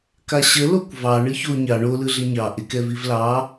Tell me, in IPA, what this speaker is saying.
k a ɕ ə l o kʷ v ɑ ɳ ɯ ç o ɲ ɑ ɳ o l ɯ ɮ ɪ ɲ ɑ ʔ ɪ k ɛ v i v l ɑ

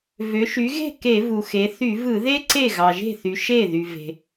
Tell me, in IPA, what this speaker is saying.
v ø˩˧ ʃ y˩˧ ɣ e̤˥˩ k e˧˩˧ v u˩ x e˩˧ θ y˧˩˧ v ɯ˧˩˧ ð e˥ ǀ e˥˩ ɣ ɑ˩ ʒ e̤˥˩ θ y˩ ʃ e˥˩ ð y˩ v e̤˩

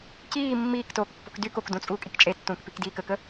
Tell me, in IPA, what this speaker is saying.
c iː mː iː k t oː k pː o̤ k d y k o k d ũ t͡sʼ uː kʼ i k t͡ʃʼ e tː ũː k p i k d iː k ə k ə

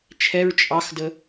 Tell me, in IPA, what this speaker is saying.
t͡ʃʰ ɛ ɹ t͡ʃʼ ɑ x d ə

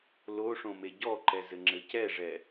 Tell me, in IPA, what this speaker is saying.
l o ʂ õ m e ɟ ɔ ǃ ɛ z ɘ ŋ͡ǁ ɘ c ɛ ʐ ɛ

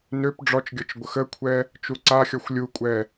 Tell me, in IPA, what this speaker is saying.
n ø p ɖ͡ʐ ɔ t͡ʃ ɡʲ ɔ t͡ʃ ɡʷ ə x ə kʷʰ ɛ | t͡ʃ u ǀ a xʲ ɔ xʷ lʲ u kʷʼ ɛ

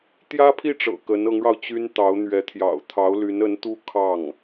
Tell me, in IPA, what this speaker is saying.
t̪ j ä˥ pʰ i˥˩ ʈ͡ʂ ɤ̰˨˩ k ə˧˥ n ɤ˧˥ ŋ ɻ ɑ˧ ʊ̯ t͡ɕ y˥ n t̪ ɑ˧˥ ʊ̯ n̪ ɥ ɛ˧˥ t̪ʰ j ɑ̰˨˩ ʊ̯ t̪ʰ ɑ˧˥ ʊ̯ l y˧˥ n ə˧˥ n t̪ u˥ kʰ ɑ˥˩ ŋ

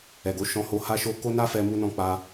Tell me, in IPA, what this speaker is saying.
ɛ˨ ɡ o˨˦ ʃ ɔ̃˧ h o˧ h a˧ ʃ o˧ k o˦ n a˦ f ɛ˧ m u˧ n ɔ̃˧ k͡p a˧

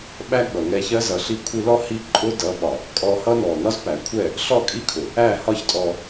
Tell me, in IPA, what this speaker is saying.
ɓ æ˦ ɡ͡b ʌ˨ ŋ ɛ˧ ç ɜ˦ z ʌ˨ ɬ i˧ kʷʰ i˧ l ɔ˦ h i˦ ǃʼ ʊ˦ d ʌ˨˦ ɓ ɒ˨ | kʼ ɔ˧ h ʌ˦ n ɔ˨ n ɒ˦ z p æ˨ kʷʰ ɛ˦˨ | ɬ ɔ˦˨ kʼ i˦ kʰ ʊ˨ | æ˦˨ h ɒ˦ ç tʼ ɔ˧

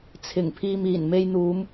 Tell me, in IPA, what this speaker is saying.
t͡sʰ ɪ˨˩ ŋ pʰ iː˨ m iː˨˩ n m e˨ j n̪ uː˨˧ m

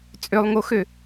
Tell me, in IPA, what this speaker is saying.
t͡sʼ ø lˠ ŋ o x ø

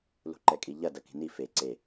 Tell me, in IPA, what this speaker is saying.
l ṳ ǃ ɛ kʼ i ʎ ɐ d ɐ k i̤ n i f e ǀ e

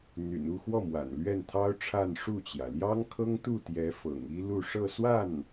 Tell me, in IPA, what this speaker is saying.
n̪ y̰˨˩ n u˥˧ x w ɔ˥˩ m w a̰˨˩ n l ɥ ɛ˥˩ n t̪ʰ ɑ˥ ʊ̯ ʈ͡ʂʰ a˥˧ n ʂ u˥˩ t͡ɕ j ä˩ l j ɑ˥ ŋ kʰ ɤ˥ ŋ t̪ u˥˩ t̪ j ɛ˧˥ f ɤ̰˨˩ ŋ i˥ l u˥˧ ʂ ɤ˥˧ s w a˥˩ n

